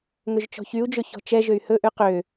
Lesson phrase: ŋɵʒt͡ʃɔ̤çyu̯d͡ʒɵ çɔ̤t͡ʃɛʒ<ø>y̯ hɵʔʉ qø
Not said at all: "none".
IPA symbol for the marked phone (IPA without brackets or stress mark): ø